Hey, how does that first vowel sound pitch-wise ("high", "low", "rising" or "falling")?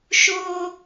high